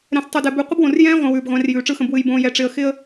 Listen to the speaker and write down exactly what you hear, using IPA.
ɾ ɛ̃˨ s tˤ ʉ˨ d ɛ˨ b ʉ˨˦ qʷ ɯ˦ b w õ˨ r j ɛ̃ː˦ ʁʷ ɛ̃˨ w ʉː˨ b ʁʷ ɛ̃˨˦ r j ʉː˨ ʈ͡ʂ ɯ˦ x ə̃˨ b w ɨ˨ j b õː˨ j ɛ˨ ʈ͡ʂ ɪ˨ ə̯ x ɪ˦ ə̯

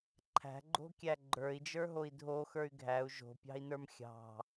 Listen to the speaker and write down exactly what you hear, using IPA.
ǃʰ æ̤ ɡ͡ǃ o̤ kʲ æ ɡ͡ǃ ə˞ i̯ d͡ʒ ə˞ ɦ o i̯ dʱ o x ə˞ y̯ ɡʱ æ u̯ ʒ o̤ pʲ ɑ̤ i̯ n ə˞ m xʲ ɑ̤

